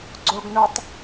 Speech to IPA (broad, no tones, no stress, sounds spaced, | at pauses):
ɡ͡ǀ o ɡ n o tˤ